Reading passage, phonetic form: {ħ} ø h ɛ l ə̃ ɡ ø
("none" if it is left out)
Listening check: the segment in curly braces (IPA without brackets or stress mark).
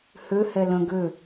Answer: h